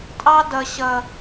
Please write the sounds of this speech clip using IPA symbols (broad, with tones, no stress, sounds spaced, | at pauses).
tʼ ɑ˦ d ʌ˨ ɕ ʌ˨